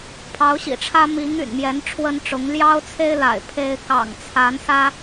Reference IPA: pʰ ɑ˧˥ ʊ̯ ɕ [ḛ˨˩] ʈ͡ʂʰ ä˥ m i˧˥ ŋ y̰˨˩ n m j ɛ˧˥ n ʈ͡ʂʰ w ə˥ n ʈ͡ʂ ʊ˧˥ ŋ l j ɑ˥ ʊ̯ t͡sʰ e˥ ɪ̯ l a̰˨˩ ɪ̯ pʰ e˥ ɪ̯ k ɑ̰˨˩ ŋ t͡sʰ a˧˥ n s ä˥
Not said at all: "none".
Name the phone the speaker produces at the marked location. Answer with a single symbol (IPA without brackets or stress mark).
ḭ˨˩